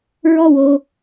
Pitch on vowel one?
low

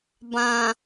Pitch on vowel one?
low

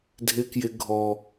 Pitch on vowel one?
high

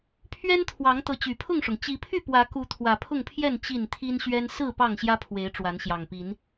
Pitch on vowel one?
high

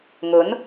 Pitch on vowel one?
rising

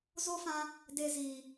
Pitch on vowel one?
high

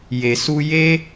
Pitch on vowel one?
low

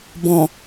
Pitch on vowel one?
low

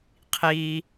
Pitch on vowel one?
high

